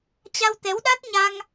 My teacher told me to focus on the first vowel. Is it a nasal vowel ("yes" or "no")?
no